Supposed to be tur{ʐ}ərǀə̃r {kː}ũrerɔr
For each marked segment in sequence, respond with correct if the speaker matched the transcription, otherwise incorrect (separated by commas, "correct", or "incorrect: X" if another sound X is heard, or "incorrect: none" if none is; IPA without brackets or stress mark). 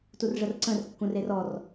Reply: correct, correct